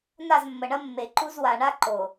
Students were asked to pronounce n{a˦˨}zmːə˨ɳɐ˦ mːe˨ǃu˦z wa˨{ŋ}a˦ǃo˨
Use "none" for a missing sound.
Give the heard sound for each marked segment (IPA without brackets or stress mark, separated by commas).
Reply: a˦˨, ɳ